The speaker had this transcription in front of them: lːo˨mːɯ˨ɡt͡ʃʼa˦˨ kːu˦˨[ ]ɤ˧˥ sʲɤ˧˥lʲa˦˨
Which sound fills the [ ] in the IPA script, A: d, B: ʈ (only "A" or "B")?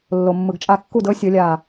A